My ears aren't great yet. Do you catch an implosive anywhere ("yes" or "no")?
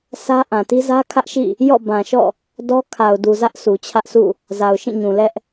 no